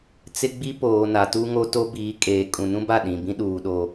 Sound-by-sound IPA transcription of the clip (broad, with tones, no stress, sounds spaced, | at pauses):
t͡s ɪ˦ ɡ͡b i˦ p oː˨ n a˨ t u˦ ŋ o˦ t o˦ b iː˨˦ kʼ eː˨ kʼ ũ˨ n ũ˦ b a˦˨ ɗ ĩ˨ b ĩ˦ ɗ uː˨ ɗ o˨